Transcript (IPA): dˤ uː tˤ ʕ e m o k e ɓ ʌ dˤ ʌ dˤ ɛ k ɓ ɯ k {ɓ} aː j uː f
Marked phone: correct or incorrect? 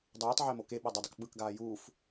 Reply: incorrect